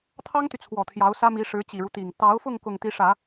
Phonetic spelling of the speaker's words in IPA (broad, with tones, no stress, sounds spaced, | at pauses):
t̪ʰ ɑ˥ ŋ t̪ y˨ t͡sʰ w ɔ˨˩ t̪ʰ j ɑ˧˥ ʊ̯ s ä˥ m i˧˥ ʂ ɻ̩˧˥ t͡ɕ i˨˩ ɻ u˦ t̪ i˨˩ ŋ t̪ ɑ˧˥ ʊ̯ f ʊ˥˧ ŋ k ʊ˥˩ ŋ t̪ i˧˥ ʂ ä˨˩˦